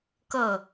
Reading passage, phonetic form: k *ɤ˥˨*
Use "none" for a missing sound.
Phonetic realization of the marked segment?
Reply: ɤ˥˨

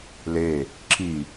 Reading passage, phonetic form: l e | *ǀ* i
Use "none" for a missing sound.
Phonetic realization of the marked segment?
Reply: ǁ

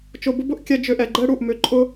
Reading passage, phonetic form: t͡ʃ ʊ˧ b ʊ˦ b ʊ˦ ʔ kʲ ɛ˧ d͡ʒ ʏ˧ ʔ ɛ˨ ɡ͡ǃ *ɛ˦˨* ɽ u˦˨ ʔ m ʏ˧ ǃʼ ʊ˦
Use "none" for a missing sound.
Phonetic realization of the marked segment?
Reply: ɛ˦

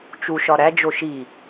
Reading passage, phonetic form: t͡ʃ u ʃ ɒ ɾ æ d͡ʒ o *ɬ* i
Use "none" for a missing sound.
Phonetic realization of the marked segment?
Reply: ʃ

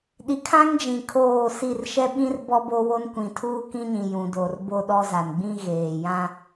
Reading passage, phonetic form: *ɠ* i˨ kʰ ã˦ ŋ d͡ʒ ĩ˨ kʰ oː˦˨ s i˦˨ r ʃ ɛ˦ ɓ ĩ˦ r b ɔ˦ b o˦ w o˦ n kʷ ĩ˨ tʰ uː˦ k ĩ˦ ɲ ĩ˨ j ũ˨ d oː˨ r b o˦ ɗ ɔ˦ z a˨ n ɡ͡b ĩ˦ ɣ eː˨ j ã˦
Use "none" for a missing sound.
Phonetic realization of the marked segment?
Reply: ɗ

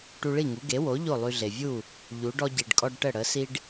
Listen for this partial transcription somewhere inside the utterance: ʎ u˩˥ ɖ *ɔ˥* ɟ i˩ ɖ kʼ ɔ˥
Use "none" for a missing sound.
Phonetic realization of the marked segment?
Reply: ɔ˥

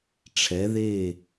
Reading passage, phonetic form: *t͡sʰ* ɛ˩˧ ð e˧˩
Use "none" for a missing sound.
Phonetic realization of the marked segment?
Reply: ʈ͡ʂʰ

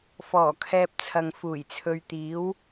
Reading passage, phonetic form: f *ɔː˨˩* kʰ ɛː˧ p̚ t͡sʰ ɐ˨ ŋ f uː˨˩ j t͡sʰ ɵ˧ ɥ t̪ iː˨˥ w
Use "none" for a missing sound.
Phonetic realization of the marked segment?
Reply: ɔː˨˩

